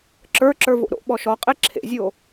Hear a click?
yes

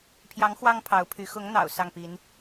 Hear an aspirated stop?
yes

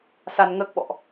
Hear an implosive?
yes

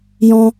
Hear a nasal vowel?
yes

